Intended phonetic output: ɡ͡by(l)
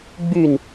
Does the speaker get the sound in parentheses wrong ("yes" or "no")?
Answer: yes